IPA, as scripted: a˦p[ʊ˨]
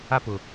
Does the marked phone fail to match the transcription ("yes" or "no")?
no